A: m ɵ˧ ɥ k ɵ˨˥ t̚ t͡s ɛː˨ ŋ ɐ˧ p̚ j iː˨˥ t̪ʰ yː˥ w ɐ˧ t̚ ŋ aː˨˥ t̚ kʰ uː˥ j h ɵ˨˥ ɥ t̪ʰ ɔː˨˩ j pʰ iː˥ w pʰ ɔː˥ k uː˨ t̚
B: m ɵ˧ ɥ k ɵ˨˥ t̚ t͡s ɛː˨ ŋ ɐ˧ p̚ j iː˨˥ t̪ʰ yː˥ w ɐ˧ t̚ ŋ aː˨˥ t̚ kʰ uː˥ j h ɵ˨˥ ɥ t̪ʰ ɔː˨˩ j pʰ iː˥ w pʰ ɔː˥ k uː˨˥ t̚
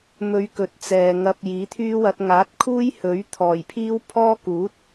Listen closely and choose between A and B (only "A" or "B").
B